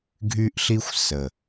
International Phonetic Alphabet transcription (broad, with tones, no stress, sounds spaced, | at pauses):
ɡʱ y˦ ʔ ɬ i˦ xʷ s ə˨